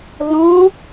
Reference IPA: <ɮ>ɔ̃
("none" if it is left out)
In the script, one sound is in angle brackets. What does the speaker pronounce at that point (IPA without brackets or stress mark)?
l